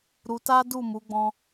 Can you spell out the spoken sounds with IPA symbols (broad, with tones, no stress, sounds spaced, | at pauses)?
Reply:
ɾ u˧ t a˦ d u˦˨ m u˨˦ ɡ͡b ɔ̃˦